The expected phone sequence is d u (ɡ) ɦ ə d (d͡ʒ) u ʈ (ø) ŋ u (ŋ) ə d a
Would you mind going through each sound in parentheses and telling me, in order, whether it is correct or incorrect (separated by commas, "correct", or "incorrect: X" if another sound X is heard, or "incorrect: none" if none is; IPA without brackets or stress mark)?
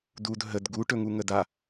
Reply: incorrect: d, incorrect: ɡ, incorrect: ɵ, correct